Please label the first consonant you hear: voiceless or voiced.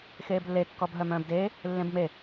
voiceless